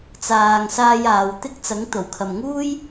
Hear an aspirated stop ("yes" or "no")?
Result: yes